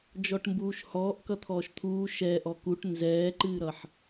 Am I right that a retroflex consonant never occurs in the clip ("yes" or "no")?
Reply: no